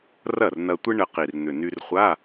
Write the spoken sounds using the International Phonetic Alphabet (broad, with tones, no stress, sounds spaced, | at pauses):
r ɐ˥˩ r n ɐ˧ tʷ ɪ˥ ɳ ə˧ q i˨˩ r n̪ ʏ˨˩ n y˧ r χʷ a˧˥˧